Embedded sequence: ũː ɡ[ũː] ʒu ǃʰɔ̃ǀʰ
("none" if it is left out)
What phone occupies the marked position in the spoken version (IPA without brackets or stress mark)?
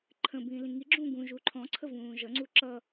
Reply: ũ